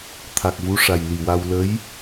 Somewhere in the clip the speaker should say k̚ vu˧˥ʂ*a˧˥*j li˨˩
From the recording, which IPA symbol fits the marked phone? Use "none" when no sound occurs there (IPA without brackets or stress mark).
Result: a˨˩